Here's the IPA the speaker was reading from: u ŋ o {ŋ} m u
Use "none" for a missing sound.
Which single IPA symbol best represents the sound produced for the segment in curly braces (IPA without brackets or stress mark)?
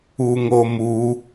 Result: none